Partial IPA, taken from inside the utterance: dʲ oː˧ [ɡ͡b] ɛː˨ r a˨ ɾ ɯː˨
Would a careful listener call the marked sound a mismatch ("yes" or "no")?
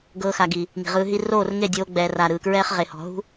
no